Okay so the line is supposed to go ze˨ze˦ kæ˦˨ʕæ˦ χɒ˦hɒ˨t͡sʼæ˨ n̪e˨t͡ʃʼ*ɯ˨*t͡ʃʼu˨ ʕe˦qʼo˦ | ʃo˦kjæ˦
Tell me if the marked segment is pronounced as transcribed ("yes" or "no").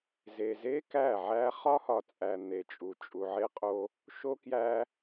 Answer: no